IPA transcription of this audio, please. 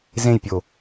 z ẽ j pʲ o

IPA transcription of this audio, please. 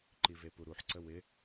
ǃ i v e p u ɾ u ħ ǀ ə w ɪ

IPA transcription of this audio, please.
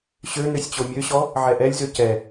ɕ ø n ø sʲ t͡ɕ o mʲ ø ɕ ɔ | ʕ ɛ ʔ ɛ lʲ z ø c ɛ

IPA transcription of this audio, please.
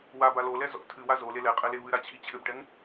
w a b a l o l ɛ z ɔ̰ tʰ ɨ w a z o l e l ɛ qʼ ɛ l e v ɨ ɾ a t͡ɕʰ i t͡ɕʰ ɘ b ʈ ɛ ŋ

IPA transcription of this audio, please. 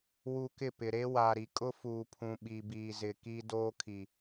w u˨ k ɪ˦˨ p ɪ˨ ɾ e˦ w a˨ ɾ i˨ kʼ ʊ˦ f uː˨ pʰ ũ˨ ɓ i˨ b iː˨ z ɪ˨ k iː˦ d oː˦ kʰ i˨

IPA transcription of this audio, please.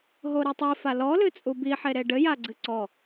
ɦ o ɾ i tˤ i f a l ɔ l ɨ t͡sʼ u b i ħ e ɾ e ɖ ɘ j a ɡ͡ǀ ɨ ǀ ɔ

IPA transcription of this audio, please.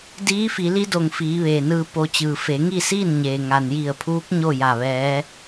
d iː˧˥ f i˩˧ l i˧˥ d o˩ ŋ f iː˩˧ ʋ eː˩ n ɯː˧ p o˧ t͡ɕ ɯː˩ f e˩˧ ŋ i˥˨ s iː˥˨ n ɲ eː˩ ŋ a˩ n j i˧˩ ə̯ pʰ uː˧˥ k̚ ɲ o˥˨ j a˧˩ ʋ ɛː˧˥

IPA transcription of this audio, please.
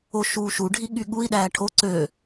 o ʃ uː ʃ u ɖʱ i ɠ y ɠ u i̯ ɗ æː ʈʰ o ǀ ø

